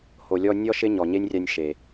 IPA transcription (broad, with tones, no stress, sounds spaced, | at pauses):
h o˨ lʲ ɔ˧ nʲ ɔ˦ ʃ ɪ˦ ɲ ɔ˨ ɲ e˦ nʲ rʲ a˧ nʲ ʃ e˨